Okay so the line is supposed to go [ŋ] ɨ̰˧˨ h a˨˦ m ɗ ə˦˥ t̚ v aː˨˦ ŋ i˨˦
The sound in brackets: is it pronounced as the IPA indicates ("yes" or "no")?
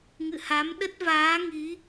yes